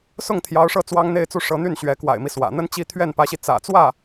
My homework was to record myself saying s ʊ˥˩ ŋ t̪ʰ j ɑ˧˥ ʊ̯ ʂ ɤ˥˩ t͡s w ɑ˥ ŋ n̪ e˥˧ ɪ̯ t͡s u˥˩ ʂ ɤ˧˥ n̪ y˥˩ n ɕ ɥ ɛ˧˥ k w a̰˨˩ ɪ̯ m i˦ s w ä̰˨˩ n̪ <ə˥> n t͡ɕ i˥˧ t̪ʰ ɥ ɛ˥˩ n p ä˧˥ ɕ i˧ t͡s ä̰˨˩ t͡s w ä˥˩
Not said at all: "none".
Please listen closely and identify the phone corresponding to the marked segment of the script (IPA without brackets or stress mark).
ə˥